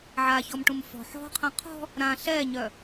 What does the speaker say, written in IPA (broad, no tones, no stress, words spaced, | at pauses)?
ʕaçɔmʈũm fɔ̤ ħɔ̤qʰɛ̃ qʰɔ̤ | ɾã ɬɛɲœ